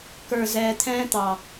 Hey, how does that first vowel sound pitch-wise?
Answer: low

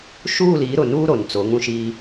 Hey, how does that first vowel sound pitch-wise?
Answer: falling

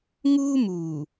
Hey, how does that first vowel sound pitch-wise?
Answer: high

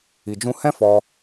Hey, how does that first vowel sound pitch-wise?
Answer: low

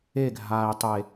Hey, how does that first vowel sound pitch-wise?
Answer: falling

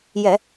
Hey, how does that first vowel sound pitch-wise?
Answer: low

